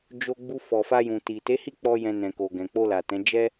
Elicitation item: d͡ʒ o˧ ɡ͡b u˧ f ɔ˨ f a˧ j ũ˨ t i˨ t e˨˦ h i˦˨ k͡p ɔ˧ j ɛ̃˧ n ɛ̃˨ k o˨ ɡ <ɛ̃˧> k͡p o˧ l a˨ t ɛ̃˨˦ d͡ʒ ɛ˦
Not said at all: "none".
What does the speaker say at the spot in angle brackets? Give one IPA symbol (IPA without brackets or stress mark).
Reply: ɛ̃˨